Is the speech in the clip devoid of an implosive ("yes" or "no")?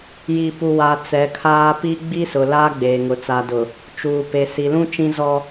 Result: yes